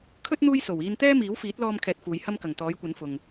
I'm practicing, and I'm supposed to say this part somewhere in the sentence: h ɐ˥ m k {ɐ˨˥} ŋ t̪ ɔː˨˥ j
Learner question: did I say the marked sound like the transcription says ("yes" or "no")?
no